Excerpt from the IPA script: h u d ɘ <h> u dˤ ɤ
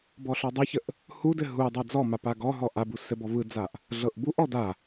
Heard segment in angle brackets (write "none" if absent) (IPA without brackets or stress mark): ɦ